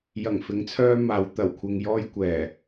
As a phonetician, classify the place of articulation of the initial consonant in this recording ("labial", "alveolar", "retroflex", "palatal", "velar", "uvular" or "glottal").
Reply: palatal